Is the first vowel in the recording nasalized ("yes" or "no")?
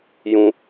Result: yes